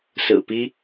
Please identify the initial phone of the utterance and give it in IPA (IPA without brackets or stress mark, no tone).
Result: s